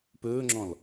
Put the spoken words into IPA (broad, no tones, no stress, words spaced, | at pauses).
pɵːŋ͡ǁɔ̃l